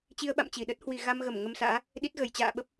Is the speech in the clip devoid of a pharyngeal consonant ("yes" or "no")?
yes